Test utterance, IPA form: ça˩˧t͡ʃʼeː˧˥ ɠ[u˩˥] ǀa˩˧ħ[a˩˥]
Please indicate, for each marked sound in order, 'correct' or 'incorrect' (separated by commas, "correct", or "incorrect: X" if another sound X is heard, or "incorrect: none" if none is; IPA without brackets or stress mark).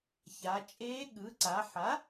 incorrect: ɯ˩˥, correct